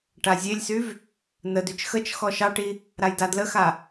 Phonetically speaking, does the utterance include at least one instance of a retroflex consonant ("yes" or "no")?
yes